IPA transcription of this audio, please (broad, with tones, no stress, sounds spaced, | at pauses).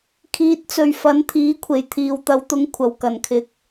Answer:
kʰ iː˨˥ t̚ t͡s ɵ˨ ɥ f ɐ˨˥ n t̪ʰ iː˨˥ kʷʰ e˨˩ j t̪ʰ iː˨ w t̪ ɐ˨˥ w t̪ ʊ˨˥ ŋ kʷʰ ɐ˨˩ w k ɐ˨˩ n kʰ ɪ˨ k̚